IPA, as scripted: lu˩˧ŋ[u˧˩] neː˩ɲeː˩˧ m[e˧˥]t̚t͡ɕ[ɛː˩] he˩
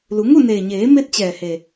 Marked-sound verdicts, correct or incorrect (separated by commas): incorrect, correct, correct